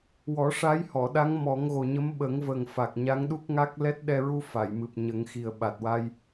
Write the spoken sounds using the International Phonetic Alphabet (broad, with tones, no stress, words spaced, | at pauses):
wɔ˨˩˦ʂa˧˥jhɔ˨˩˨ɗa˧˥ŋ mɔ˨˩˦ŋɣo˨˩ɲə˧˥m ɓə˨˩˦ŋvə˨˩ŋ fa˨˩k̚ɲa˧˥ŋɗu˦˥k̚ŋa˦˥k̚ lɛ˦˥t̚ɗɛ˧ɹu˧ fa˨˩˨jmɨ˨˩p̚ɲə˨˩˦ŋxi˨˩ə̯ ɓa˨˩t̚wa˧j